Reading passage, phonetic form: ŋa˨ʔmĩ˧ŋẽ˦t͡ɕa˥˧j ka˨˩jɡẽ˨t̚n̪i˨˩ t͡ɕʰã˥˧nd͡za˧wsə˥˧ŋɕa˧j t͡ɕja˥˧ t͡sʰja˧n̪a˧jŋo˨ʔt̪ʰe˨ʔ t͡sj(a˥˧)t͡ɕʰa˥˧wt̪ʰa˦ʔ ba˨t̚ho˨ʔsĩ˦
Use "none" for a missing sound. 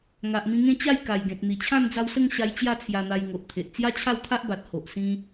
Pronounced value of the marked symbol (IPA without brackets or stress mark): a˦